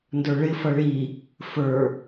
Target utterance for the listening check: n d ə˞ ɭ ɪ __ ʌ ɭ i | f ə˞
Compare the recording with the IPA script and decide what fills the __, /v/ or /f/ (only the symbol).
f